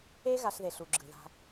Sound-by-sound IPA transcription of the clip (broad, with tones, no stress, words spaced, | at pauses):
e˦ ɣa˨ɬðe˩ɬu˩ ɡ͡ǁɯ˩ða̤˨